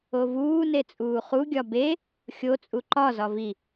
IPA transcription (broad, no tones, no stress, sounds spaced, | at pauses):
o v uː n e t͡sʼ uː χ u ɡʲ ɒ b e | xʲ o t͡sʼ u ǃ ɒ z ɒ v i